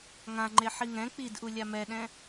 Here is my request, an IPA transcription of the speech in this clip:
ŋ ã ŋ͡ǃ e ħ i ŋ ɛ̃ k͡p i d ʔ u lʲ a m ɛ ɗ ɛ̃

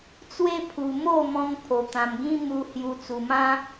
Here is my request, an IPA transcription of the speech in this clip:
t͡s w e˦ pʰ u˧ m o˥˧ m ɔ̃˧ ŋ pʰ o˧ t̪ ã˧ m ɡ ĩ˦ m u˧ h j u˧ t͡s u˧ m ã˦

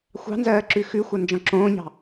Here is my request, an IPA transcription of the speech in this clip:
xʷ ɑ̤ n z ɜː ǁ ʉ x ʉ xʷ ɜ n d͡ʒ ɔ̃ ǁ õː ɲ ɑ̤

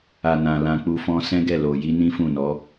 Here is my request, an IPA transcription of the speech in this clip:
a˨ n ã˨ l ã˧ k͡p u˧ f ɔ̃˦ s ɛ̃˦ ɡ ɛ˦˨ l o˨ j i˧ n ĩ˦ f ũ˦˨ n ɔ˨˦

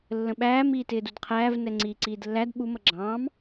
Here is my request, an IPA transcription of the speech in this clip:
lː ə̃ ɓ æː m iː t ɪː d u d qʰ æː v n ɛ ŋ͡ǀ iː ǀ iː d lː æ d ɓ u m ʌ ɡ͡ǁ ɑ̃ː m

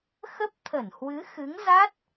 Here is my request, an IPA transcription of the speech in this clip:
x ə˦˥ p̚ t̪ʰ ə˧˩ n h w ɨ˨˦ x ɨ˨˦ ŋ z a˦˥ t̚

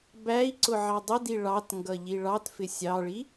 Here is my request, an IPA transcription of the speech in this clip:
b æ i̯ ǀ ʊ ʕ ɑ dˤ ɪ d i ɭ ɑ t ŋ ɡ ʌ ʎ i ɭ ɑ t f ɪ sʲ ɑ ɭ i

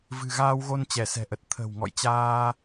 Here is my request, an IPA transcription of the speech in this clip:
v ɨ̤˨˩ ɣ aː˧ w ɣ o˧ n t͡ɕ ɛ˧˩ s ɛ̤˨˩ ʔ ə˨˩ t̚ t̪ʰ ə̤˨˩ w ŋ ɔ̰˧˨ j t͡ɕ aː˧

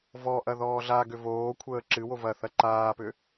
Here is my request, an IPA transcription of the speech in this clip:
v ɔ ʔ ɐ ð ɔː ɮ a ɡ ʏ v oː kʷʰ əː ǁ ɨ w o v ɐ θ ɐ ǃ aː p ʏ

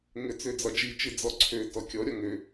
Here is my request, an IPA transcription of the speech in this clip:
ŋ ø t͡s ø d͡z ɒ d͡ʒ i t͡ʃ ɨ d͡z ɔ ǀʰ ø t ɔ kʲ ɔ ɾʲ ɒ ŋ ø

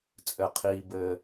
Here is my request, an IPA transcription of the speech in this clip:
t͡sʼ ɘ˩ qʰ iː˩ b ɘː˩

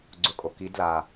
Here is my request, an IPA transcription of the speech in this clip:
ɡ͡ǀ ʊ kʼ o k i d l a

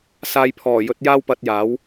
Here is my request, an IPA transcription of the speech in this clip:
s aː˧ j pʰ ɔː˨˩ j ɵ˨˥ t̚ j aː˥ w p ɐ˧ t̚ j aː˨˥ w

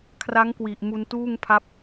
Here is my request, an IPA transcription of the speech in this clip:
kʰ r a˦˥ ŋ k w i˨˩ ʔ m u˧ n t uː˥˩ ŋ pʰ a˦˥ p̚

